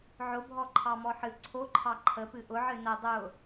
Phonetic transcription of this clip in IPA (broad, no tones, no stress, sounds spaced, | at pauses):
ʕ ʊ bʱ ɔ ǃʰ ɑ m ɔ ħ ɨ ǀʰ o ǃʰ ɑ ǃʰ ə p ɨ ʔ ʊ ʕ ɨ n ə dˤ ʊ